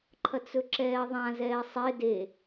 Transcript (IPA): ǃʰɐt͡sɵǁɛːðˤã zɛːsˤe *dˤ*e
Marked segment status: incorrect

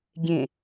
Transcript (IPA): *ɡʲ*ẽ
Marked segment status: correct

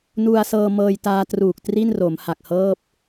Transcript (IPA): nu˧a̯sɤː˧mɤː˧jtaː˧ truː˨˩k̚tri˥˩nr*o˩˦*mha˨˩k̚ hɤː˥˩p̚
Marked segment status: correct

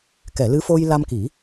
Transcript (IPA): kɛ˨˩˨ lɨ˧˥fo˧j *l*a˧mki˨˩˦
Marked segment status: correct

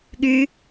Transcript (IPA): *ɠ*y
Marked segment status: correct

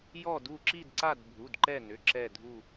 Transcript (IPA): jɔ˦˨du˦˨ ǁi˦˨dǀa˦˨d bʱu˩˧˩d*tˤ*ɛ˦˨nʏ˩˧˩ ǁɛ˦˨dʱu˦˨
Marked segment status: incorrect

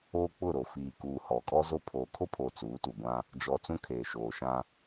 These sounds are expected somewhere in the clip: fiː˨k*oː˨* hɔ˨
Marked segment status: incorrect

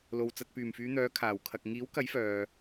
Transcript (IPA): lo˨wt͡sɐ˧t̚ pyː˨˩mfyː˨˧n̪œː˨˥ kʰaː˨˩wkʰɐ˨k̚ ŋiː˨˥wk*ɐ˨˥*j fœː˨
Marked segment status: correct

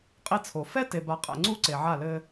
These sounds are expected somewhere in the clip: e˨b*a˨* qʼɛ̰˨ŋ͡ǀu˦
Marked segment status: correct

